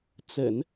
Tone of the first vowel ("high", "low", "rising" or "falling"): low